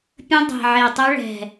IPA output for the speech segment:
pʲ ə̃˦˥ dˤ e̤˨˩ ʕ e˨˩ tˤ œ˦˥ ɭ ɛ̤˨˩

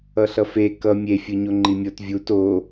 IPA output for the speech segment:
ʌ ɬ ʌ f e k ʌ mʲ e fʲ ɯ ɲ o ŋ͡ǃ i mʲ o t vʲ u t o

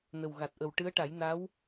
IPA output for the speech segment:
n ə˨˩ w ɣ a˨˩ t̚ ʔ ə˨˩ w ʈ ɨ˧˥ ə̯ ʈ a˨˩˦ j n a˧˥ w

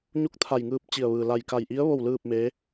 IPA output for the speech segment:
ɲ u˧˥ k̚ t̪ʰ a˧˩ j ŋ ɯː˧ p̚ t͡ɕ i˧˩ ə̯ ʋ ɯː˩ l a˧˩ j k a˧˩ j ʔ i˧˥ ə̯ ʋ o˥˨ w l ɯː˥˨ p̚ m eː˧˥

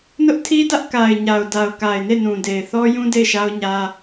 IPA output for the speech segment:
n ʊ˦ ʔ tʰ i˦ d ä˦ ʔ k a˨ ɪ̯ ɲ a˨ ʊ̯ d a˨ ʊ̯ k a˨ ɪ̯ n e˦˨ n ũ˨ d e˨ ɪ̯ θ ɔ˦ j ũ˦ d e˦˨ ɪ̯ ʃ a˦ ʊ̯ ɲ ä˦

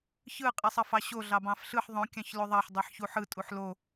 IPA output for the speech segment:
ç ɯ qʼ i sˤ ɑ f ɑ ɕ o ɮ ɑ b ɑ̃ f ɬ ɯ ħ ðˤ õ kʲ ɑ̃ ç l o ðˤ ɑ ħ dˤ i ħ ç u ħ ɯ tʼ u ħ l o

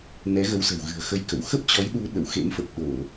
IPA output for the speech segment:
n ɛ˨˦ ɣ ə˨˦ w s ə̤˨˩ w ɣ ɨ̤˨˩ ə̯ x ə˧ j k ə̰˧˨ w x ə˦˥ p̚ t͡ɕ ɔ˨˦ j ɗ u˨˦ ɗ ə̰˧˨ w x ḛ˧˥ m f ə˨˩ p̚ ɗ o˧˩˨

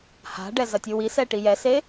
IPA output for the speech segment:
h a̤ ɖ ɛ z ɐ tʲ u w i s ɛ ʈ i j ɛ s e

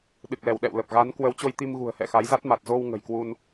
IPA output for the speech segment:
ɗ ɨ˨˩ k̚ l ɛ˧˩ w ɗ ɛ̰˧˨ w l ə˨˩ p̚ ɣ a˨˦ n k w ə˨˦ w t͡ɕ o˧ j t̪ i˧ m ɣ ṳ˨˩ ə̯ h ɛ̰˧˨ x a˨˦ j z a˦˥ t̚ m a˨˩ t̚ z o˧ w ŋ ə̤˨˩ j k w u˧ n

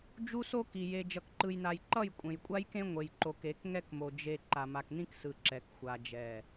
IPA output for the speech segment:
d͡ʒ u˦ s o˦ k i˨ j e˨ d͡ʒ ʌ˨ k ǃ ɯ˨ j n a˨ j ǃ ʌ˦˨ j kʷʼ ẽ˨ j kʷʼ a˦ j k ẽ˦ ŋʷ e˨ j ǃ o˨ k e˨˦ k ŋ ɛ˦ k m o˨ d͡ʒ e˨ ǃ a˨ m a˨ k n ĩ˦ k s ɯ˨ ǁ ɛ˨ k xʷ a˨ d͡ʒ ɛ˨

